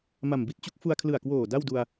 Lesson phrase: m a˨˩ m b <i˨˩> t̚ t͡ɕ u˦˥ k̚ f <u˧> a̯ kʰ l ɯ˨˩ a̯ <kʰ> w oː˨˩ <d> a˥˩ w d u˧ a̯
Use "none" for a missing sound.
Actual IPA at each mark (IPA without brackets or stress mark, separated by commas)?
i˦˥, u˧, k, d